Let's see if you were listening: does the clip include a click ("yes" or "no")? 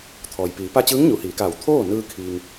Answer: no